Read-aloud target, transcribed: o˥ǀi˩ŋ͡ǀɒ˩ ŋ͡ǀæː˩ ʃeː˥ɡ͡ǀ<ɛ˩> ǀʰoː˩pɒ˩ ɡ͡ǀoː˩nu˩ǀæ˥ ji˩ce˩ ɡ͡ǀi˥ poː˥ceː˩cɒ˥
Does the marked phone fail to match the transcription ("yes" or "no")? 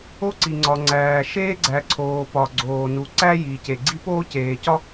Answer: yes